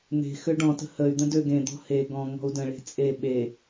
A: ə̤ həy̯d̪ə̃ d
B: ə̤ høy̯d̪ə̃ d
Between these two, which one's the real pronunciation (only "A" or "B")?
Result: A